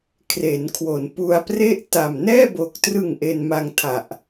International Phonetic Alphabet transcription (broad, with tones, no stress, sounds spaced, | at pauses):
kʰ r e˩˦ n kʰ w o˩˦ n p u˧ a̯ p r e˥˩ ʔ t a˨˩ m n ɛː˥˩ b o˨˩ k̚ t r ɯ˨˩ ŋ ʔ e˧ n m a˧ ŋ tʰ a˨˩ ʔ